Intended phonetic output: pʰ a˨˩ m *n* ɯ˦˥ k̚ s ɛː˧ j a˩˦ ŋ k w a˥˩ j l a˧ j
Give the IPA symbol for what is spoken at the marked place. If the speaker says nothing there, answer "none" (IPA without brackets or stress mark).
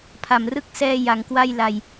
r